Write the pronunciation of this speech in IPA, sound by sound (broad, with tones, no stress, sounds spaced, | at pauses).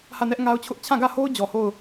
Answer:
h ä˦˨ n ɛ˦ ʔ ŋ a˦ ʊ̯ t͡ɕʰ ʊ˦ ʔ t͡ɕʰ ã˦˨ ɡ ä˦˨ h o˦ ʊ̯ d͡ʑ ɔ˨ h o˦˨ ʊ̯